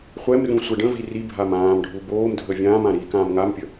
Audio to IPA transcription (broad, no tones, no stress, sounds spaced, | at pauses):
χʷ ɛ m r ũ sʷ ɛ ɖ ə̃ v i r i bʱ a m ãː m ɖʱ u b oː m dʱ ə vʲ ãː m ã ɾ i k ãː m ŋ a m pʲ ə